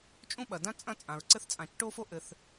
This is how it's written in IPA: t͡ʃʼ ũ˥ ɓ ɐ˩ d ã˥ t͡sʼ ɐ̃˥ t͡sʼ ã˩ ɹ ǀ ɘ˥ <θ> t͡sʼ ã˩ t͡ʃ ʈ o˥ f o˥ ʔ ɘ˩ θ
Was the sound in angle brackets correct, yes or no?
yes